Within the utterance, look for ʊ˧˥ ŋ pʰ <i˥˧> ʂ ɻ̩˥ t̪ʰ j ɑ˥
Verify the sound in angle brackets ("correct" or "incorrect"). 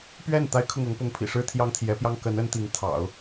incorrect